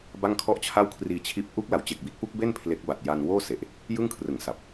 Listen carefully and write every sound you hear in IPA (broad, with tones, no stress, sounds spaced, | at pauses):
b a˥˩ ŋ kʰ ɔ˥˩ ʔ t͡ɕʰ a˥˩ w kʰ r iː˧ t͡ɕʰ iː˦˥ p̚ ʔ u˦˥ k̚ l a˩˦ w t͡ɕ e˨˩ k̚ b i˦˥ t̚ p u˦˥ k̚ b e˥˩ n pʰ l e˦˥ k̚ b a˨˩ t̚ j a˧ n w oː˥˩ s e˨˩ ʔ | j ɯ˥˩ ŋ kʰ r ɯ˨˩ ŋ s a˨˩ p̚